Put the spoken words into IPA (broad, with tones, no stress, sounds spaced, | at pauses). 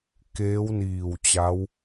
k eː˧˥ w n iː˧˩ w t͡ɕ a˧˥ w